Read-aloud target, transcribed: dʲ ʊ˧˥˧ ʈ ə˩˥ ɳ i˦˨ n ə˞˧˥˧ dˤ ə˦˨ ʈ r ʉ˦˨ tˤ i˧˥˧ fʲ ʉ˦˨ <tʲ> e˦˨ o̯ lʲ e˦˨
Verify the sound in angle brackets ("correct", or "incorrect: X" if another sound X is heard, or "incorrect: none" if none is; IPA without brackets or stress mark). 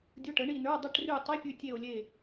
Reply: correct